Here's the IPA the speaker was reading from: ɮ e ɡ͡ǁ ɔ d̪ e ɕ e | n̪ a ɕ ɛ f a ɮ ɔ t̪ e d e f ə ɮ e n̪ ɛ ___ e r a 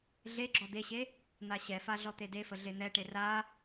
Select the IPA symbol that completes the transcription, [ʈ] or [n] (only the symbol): ʈ